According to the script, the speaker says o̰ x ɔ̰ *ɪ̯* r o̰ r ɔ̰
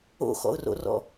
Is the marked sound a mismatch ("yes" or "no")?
yes